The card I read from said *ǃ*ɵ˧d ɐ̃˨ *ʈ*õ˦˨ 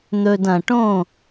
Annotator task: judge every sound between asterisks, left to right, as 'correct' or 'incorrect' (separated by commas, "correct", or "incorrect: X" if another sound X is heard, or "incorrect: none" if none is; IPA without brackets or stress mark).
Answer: incorrect: n̪, correct